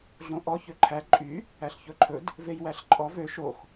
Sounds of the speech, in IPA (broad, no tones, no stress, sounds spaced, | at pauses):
ɮ õ ʔ ɔ ç ø ǃʰ æ ǃʼ y | æ ɬ ç ɵ ǃʰ ɵ d | v e j w æ ɬ ǃʼ ɔ v ø ʃ o x